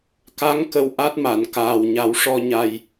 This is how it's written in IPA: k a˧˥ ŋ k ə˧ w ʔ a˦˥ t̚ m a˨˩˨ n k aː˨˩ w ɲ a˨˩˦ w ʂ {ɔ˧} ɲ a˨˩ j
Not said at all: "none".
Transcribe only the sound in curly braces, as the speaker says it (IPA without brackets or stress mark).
ɔ˧